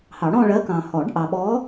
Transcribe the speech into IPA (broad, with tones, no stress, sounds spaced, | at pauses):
h ɑ˨˩˦ ɽ ɔ̃˥˧ ɭ ɜ˧˥ k ɑ̃˨ h ɔ˨˩˦ ɖ ʔ ɑ˨ ɓ ɔ˧˥